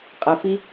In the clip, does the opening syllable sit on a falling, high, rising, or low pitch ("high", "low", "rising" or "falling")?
low